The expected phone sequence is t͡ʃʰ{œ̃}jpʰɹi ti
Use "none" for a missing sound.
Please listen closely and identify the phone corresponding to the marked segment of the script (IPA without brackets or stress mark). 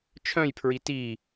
œ̃